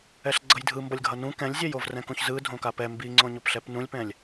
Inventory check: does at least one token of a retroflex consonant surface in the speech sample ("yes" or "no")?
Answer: no